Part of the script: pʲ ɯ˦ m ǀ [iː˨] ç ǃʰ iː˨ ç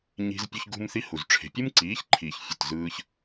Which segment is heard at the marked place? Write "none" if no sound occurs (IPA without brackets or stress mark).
iː˨˦